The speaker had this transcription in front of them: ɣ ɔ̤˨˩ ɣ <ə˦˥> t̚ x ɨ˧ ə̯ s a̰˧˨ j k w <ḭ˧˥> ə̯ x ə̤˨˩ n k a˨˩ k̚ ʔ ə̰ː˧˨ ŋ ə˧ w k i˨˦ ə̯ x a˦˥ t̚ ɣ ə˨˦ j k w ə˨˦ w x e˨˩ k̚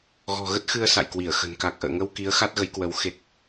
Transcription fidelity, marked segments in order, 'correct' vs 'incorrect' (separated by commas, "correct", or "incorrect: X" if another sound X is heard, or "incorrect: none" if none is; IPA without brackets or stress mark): correct, incorrect: i˧˩